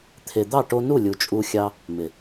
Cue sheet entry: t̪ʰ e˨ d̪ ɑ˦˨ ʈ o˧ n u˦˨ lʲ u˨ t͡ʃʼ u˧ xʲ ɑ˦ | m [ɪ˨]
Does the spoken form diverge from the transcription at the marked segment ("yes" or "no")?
no